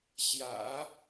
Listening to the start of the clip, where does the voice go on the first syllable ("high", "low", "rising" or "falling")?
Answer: low